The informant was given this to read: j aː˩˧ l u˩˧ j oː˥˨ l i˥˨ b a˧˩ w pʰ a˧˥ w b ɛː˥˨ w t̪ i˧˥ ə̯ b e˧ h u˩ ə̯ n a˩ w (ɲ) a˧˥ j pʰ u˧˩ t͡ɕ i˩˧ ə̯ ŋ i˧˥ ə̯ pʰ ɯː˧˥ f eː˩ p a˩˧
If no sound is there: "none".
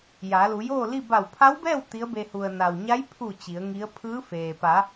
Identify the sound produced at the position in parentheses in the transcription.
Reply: ɲ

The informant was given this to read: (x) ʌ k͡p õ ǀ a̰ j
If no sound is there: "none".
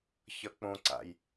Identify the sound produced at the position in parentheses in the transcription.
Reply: ç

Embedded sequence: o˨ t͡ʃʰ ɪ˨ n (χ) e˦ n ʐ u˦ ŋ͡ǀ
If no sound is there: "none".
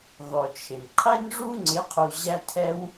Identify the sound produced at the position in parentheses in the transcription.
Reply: qʰ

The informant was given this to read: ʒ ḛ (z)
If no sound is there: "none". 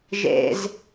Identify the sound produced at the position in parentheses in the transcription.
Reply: z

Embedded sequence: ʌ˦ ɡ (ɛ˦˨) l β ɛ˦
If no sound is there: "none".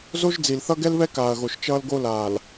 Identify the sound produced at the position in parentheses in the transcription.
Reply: ɛ˦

